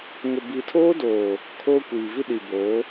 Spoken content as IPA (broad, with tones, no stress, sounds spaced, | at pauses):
ŋ ʊ˨ b iː˨ tʰ oː˦ d oː˨ | kʰ oː˦ kʷ iː˨ v i˦ ɗ i˨ b oː˨˦